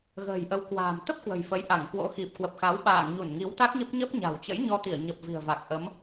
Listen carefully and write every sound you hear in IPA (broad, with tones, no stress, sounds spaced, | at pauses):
ɣ ə̤ː˨˩ j ʔ ə˨˦ w k w a̤ː˨˩ m t̪ ə˦˥ p̚ k w ə̤˨˩ j f ə˨˦ j ʔ a˧˩ ŋ k w o̰˧˥ x i˨˩ p̚ k w ə˨˩ p̚ x a˨˦ w ɓ a̰ː˧˨ ŋ ɲ u˧˩ n ŋ i˨˦ w t̪ a˦˥ k̚ ɲ ə˦˥ p̚ ɲ ə˦˥ p̚ ɲ a̤˨˩ w t͡ɕ ə̰˧˥ j ɲ ɔ˧ t̪ i˧˩ ə̯ ɲ ə˨˩ p̚ v i̤˨˩ ə̯ v a˨˩ k̚ ʔ ə˨˦ m